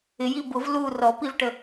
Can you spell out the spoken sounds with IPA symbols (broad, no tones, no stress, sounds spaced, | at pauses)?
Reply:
ɪ j i b ʊ v l u r ɔ p i v ʈ ə